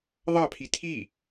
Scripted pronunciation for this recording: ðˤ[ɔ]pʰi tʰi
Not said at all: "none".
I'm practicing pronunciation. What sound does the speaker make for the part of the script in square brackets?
ɑ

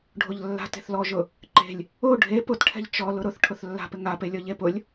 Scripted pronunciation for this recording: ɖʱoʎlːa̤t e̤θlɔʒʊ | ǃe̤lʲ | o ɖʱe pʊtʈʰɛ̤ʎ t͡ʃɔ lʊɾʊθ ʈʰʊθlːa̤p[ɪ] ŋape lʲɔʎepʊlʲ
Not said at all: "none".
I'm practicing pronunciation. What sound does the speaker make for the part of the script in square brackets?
ɪ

